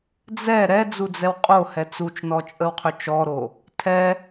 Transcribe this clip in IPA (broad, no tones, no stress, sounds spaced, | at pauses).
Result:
d͡z ɛ ɾ ɛ d͡z u d͡z ɛ w qʼ o h ɛ t͡s u t͡ʃ n ɔ t͡ʃʼ ə w qʰ ʏ t͡ʃ ɔ ɾ o | tʰ ɛ